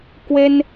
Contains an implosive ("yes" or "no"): no